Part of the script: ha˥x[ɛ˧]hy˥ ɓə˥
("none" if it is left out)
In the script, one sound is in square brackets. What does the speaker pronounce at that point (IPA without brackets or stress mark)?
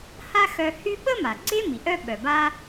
œ˧